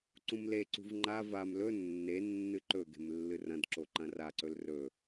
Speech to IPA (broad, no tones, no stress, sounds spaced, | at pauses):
ǀ ũ m l e ǀ ṳ v ŋ͡ǃ a v a m l ɵ nː e nː ɨ ǃ ɵ ɡ e̤ m lː ɨ r ɐ̃ d ǁ o ǃ ɐ̃ r a ǀ ɵ l r ɵ